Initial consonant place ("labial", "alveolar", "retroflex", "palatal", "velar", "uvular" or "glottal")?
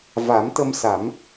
labial